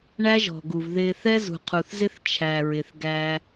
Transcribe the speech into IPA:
ɳ æ˦ ʒ ɔ̤˨ ɡ u˨ v ð ɪ˨ θ ɛ˦ z ṳ˨ qʰ u˨ θ z ɪ˦ θ t͡ʃʰ æ˨ ɹ ɪ˨ θ ɡ æ˦

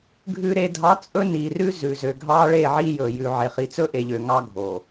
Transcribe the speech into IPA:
ɡʱ ʉ˨ ɾ e˨ dʱ ɑ˨˦ t͡sʼ ɵ˦ n i˨ r ʉ˦ z ʉ˨ z ø˨ ɡʱ ɑ˦ ɭ e˦˨ ʕ i˦ j ɵ˨ j ʉ˨ ʕ e˨ χ i˨ t͡s ɵ˦ ʔ e˨ ʎ ø˨ ŋ ɑ˦ ɡʱ o˨

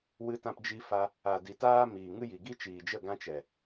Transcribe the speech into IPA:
w ɨ˧ t ã˧ p d͡ʒ i˧ f a˧ | a˨ d i˨ t aː˦ m iː˨ ŋ ɨ˦ j i˨ ɡ i˦ t͡ʃ iː˨ d͡ʒ ə˦˨ ɡ ã˦ t͡ʃ ɛ˨

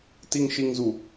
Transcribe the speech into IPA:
t i˨ ŋ ʃ i˨ ŋ z u˨

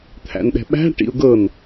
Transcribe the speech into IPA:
t̪ʰ æ̰ n ɗ ɛ̤ ɓ æ̤ ʈ ḭ ʊ̯ ɡ ɤ n

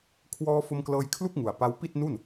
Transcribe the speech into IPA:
kʰ w ɔː˧ f o˧ m k l ɤː˧ j kʰ l u˥˩ k̚ ŋ u˨˩ a̯ p a˦˥ w p i˥˩ t̚ n u˥˩ n

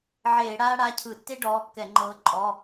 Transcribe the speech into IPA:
ʕ eː˧˩˧ ɽ aː˥ ɽ a˩˧˩ cʰ ɯ˧˩˧ tː e˥ ɖ ɔː˩˧˩ kː ɛ˧˩˧ ŋ͡ǃ ɤː˨˦ ǃʼ ɔ˩˧˩

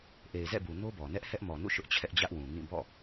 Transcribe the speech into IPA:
ʔ e˨ ɪ̯ z ɛ̰˦˨ b u˨ n o˦ b ɔ˨ n ɛ˦ ʔ h ɛ˦ ʔ m ɔ˨ n ṵ˦˨ ʃ ʊ˦ ʔ t͡ɕʰ ɛ˦ ʔ d͡ʑ ä˦ ʔ w ũ˨ ŋ ĩ˦˨ b ɔ̰˦˨

